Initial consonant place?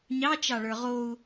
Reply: palatal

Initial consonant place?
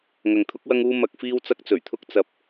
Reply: velar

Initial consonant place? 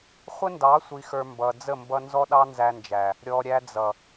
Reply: uvular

